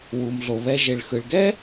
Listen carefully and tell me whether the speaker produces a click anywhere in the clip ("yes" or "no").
no